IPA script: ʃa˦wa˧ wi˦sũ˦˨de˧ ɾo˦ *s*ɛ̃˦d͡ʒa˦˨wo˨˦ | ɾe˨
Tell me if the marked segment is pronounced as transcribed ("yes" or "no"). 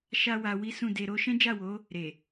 no